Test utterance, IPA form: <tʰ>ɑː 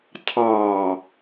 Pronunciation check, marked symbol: correct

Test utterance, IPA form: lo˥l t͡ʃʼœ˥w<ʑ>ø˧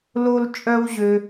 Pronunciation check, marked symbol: correct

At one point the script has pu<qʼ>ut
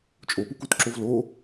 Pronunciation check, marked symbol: incorrect: k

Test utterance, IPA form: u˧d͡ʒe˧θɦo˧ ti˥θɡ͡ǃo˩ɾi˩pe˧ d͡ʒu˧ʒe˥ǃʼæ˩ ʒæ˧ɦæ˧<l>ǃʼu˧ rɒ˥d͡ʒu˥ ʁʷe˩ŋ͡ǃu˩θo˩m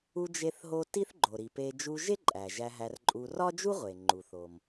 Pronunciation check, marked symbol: incorrect: r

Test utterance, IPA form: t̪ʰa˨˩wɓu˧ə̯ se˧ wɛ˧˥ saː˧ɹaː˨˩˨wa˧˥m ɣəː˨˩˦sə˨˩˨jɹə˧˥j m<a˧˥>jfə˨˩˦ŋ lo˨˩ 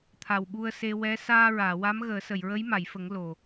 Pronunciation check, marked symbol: incorrect: a˨˩˨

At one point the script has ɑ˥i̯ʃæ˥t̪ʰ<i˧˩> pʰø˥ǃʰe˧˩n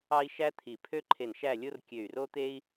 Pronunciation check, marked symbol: correct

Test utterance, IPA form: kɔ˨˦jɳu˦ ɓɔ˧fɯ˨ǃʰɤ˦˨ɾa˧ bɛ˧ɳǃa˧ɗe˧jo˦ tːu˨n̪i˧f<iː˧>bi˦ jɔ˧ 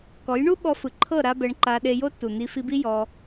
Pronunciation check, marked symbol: incorrect: i˧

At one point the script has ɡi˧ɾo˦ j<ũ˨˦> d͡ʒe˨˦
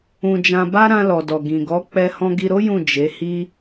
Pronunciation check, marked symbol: incorrect: ũ˦˨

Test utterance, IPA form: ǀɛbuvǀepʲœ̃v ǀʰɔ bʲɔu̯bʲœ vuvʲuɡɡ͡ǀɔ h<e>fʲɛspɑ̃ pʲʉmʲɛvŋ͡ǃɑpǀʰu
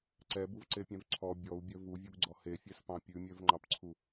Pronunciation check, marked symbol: correct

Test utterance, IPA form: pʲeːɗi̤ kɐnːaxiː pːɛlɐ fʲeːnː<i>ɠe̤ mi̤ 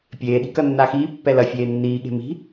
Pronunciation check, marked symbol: incorrect: iː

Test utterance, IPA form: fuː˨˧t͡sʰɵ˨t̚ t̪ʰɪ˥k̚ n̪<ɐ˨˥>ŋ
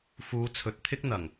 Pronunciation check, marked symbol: incorrect: ɐ˨˩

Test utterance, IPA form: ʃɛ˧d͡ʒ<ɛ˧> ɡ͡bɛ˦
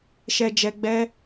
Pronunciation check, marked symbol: correct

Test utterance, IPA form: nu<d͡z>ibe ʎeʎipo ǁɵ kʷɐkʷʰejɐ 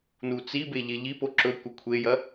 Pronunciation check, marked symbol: incorrect: t͡s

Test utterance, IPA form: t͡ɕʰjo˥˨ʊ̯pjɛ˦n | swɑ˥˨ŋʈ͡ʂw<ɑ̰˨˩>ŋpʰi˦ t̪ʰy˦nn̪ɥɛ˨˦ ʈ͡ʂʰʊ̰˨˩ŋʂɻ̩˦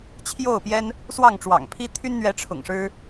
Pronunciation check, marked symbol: correct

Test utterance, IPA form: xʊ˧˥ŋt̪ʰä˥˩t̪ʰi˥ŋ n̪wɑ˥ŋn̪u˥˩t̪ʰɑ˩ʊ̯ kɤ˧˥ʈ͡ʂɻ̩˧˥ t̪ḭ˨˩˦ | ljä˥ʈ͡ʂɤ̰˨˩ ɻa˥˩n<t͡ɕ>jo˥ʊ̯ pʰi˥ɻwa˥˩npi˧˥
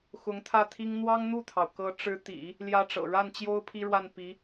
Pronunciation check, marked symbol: correct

